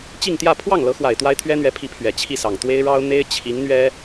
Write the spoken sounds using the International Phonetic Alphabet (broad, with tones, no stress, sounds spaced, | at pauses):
t͡ɕ i˥˧ ŋ t̪ j ä˥˧ pʰ w ɑ˥˩ ŋ l ɤ˧˥ x w a˨˩ ɪ̯ t̪ w a˥ ɪ̯ t̪ʰ ɥ ɛ˥ n̪ ɥ ɛ˧˥ pʰ i˧˥ pʰ ɥ ɛ˨˩ t͡ɕʰ i˥˩ s ɑ˨˩ ŋ t̪ w e˥ ɪ̯ ɻ ɑ˥ ʊ̯ n̪ e˥ ɪ̯ t͡ɕʰ i˧˥ ŋ n̪ ɥ ɛ˥